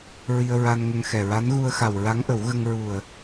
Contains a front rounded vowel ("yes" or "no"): no